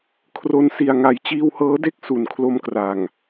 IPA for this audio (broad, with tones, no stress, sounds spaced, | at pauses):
kʰ r o˧ n s i˨˩ a̯ ŋ a˨˩ j t͡ɕ iː˧ w h ɤː˦˥ d e˥˩ k̚ s u˨˩ n kʰ l o˧ m k r a˨˩ ŋ